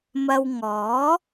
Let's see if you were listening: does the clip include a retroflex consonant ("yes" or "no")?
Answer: no